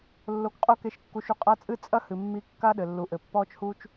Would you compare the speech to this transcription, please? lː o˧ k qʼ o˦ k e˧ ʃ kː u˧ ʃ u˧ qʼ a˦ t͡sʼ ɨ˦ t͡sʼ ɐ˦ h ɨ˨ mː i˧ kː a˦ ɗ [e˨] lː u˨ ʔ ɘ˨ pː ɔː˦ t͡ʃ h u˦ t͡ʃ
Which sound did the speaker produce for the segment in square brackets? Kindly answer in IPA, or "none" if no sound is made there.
ɘ˨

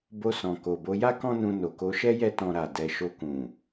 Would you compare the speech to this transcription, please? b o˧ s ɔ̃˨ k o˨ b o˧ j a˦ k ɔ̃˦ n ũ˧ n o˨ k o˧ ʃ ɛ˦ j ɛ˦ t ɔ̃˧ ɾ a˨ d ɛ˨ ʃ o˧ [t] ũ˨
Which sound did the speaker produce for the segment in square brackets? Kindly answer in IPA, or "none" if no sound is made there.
k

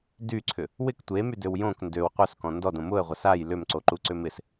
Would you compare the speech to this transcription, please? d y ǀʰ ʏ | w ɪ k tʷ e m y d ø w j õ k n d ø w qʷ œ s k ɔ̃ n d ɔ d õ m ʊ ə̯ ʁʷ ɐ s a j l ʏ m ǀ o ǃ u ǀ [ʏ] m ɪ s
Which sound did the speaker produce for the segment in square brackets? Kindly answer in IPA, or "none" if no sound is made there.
ʏ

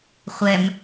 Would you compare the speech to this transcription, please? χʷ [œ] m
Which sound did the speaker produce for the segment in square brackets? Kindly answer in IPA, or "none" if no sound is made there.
ɛ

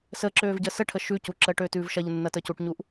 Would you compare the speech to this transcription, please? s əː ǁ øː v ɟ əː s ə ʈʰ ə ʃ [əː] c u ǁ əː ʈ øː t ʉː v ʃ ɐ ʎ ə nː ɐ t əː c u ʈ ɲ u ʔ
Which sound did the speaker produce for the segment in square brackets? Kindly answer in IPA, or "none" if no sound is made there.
ʉː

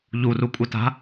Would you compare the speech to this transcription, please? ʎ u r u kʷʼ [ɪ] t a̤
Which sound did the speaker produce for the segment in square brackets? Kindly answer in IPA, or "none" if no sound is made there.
ɪ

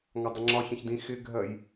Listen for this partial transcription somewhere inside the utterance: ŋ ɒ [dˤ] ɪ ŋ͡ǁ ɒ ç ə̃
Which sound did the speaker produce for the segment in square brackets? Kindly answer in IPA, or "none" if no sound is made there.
dˤ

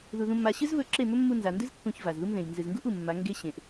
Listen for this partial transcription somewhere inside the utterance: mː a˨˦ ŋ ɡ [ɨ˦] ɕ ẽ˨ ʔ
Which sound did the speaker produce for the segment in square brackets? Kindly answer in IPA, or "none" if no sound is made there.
e˦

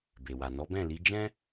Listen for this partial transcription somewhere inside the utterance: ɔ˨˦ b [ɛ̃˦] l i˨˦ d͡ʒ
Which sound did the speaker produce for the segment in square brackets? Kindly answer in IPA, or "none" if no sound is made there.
ɛ̃˦˨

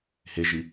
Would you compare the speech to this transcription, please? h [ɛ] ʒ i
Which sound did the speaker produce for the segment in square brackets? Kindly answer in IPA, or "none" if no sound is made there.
e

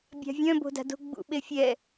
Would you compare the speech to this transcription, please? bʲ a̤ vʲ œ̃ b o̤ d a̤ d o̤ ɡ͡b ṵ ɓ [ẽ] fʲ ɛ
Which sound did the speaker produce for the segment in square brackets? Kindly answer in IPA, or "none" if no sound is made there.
e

